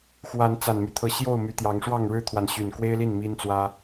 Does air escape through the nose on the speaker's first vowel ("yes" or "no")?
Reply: no